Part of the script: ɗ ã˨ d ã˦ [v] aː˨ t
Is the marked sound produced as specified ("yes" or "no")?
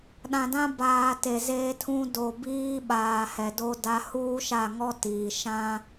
no